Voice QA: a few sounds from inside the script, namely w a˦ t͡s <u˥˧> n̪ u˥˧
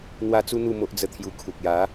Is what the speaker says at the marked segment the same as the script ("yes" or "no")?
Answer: no